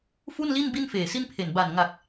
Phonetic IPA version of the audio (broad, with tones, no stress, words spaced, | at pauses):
fu˥˩n li˥˩n bi˥˩nfeː˨˩si˥˩npʰe˨˩n ba˨˩nŋa˨˩k̚